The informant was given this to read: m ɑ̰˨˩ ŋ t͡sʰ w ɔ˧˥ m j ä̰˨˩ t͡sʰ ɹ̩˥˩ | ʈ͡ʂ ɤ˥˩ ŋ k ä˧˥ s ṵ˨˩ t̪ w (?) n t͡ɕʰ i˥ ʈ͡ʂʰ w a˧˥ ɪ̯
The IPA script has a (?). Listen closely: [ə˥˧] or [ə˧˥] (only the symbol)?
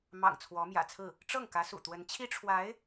ə˧˥